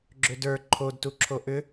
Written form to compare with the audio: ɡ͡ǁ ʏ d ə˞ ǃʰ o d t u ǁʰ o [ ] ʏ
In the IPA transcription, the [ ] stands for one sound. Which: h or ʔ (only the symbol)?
ʔ